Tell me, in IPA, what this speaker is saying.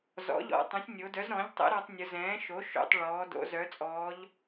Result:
z ɔ̰˩˥ ʎ ɔ̰˩˧ tˤ œ̃˩˥ sʲ nʲ o˩˧ d œ˩˥ z ɾ ɔ̃˩˥ ʎ tˤ ə̰˩˥ ɾ ɔ˩˧ tˤ nʲ ʊ˩˧ z ɛ̃ː˩˥ ʃ o˩˥ ʃ o̰˩˧ tˤ ɭ ɔː˩˧ d o̰˩˧ z œ˩˧ t͡sʼ ɔː˩˧ ʎ

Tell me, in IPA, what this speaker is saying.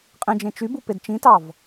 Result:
qʼ ĩ d͡ʒ ẽ t͡ʃ y b u p e d t͡ʃ ĩ t ɑ v

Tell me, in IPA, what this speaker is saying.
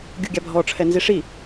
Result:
ɡʲ u ɡʲ a bʱ ɔ ʈ͡ʂʰ ɛ n z i ʂ i

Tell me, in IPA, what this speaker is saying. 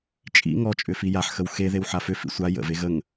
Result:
t͡ʃʼ ḭ ŋ ɔ t͡ʃʼ ʏ f i j a ħ x ə w x e ð e w ħ a f ʏ f ḭ sʷ a j ə̰ v e ɣ ə ŋ

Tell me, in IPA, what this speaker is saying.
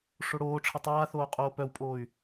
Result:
ʂ o ɽ oː ʈ͡ʂʰ ə tˤ aː θ oː qʼ oː p œ w pʼ oː y̯

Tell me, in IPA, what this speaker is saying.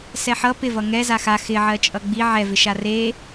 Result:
s ɛ ħ ʌ p ɪ v ʌ ŋ ɛ z a x a x ɪ ʕ ɜ t͡ʃʼ ʌ ɡ͡b i ʕ ɛ v ɪ ʃ a r e

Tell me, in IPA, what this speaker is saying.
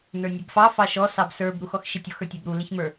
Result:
n ə˞ nʲ ɛ b f ɑ f ɑ ʃ ɔ s ɑ b s ə˞ b ɾ u x ɔ x ʃ i tʲ ɔ x ə˞ tʲ ɑ b ɾ u l ɪ ç m ə˞

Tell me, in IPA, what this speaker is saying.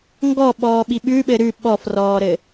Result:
ŋ ɡ ɔ ɓ ɔː ɓ i ɓ ʉ ɓ ɘ ɾ ʉ ɓ ɔ f r ɔː ɾ ɘ

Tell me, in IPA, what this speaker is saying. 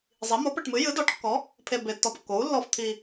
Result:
zˤ i˨˥ m o˨˥ p ɛ˧ ʈ m ɨ˨˥ j ɨ˨˥ d ɔ˨˥ ʈ kː ɔ˨˥ | pʰ e˧ b e˧ tː ɔ˧ p kː o˨˥ u̯ lː ɔ˧ f t̪ʰ i˧

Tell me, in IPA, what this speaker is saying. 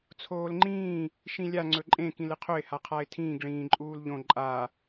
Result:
t͡sʰ oː l ŋ͡ǃ ĩː | ʃ ĩ lʲ a ŋ͡ǀ ɵ ǃʼ ẽ k ĩ l ɨ qʰ ɵ ɪ̯ h a qʰ a ɪ̯ tʰ ĩː ɡ ɭ ĩː ǃʼ uː l ʎ õ ǃʼ a

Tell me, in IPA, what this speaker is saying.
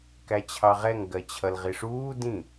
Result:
k æ t͡ɕʰ ɑ ʁ ɛ ŋ ɡ ɜ t͡ɕʰ ʌ l ʁ i ʂ uː d ĩ

